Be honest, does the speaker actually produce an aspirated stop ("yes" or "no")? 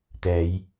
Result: no